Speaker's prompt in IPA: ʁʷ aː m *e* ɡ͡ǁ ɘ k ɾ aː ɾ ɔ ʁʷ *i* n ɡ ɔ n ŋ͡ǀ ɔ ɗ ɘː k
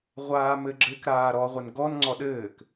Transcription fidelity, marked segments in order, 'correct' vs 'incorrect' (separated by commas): incorrect, incorrect